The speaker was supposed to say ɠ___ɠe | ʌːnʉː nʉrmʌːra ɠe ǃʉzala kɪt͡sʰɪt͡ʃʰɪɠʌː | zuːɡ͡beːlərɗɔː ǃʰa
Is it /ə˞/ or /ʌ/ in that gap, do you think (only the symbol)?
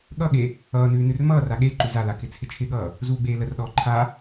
ʌ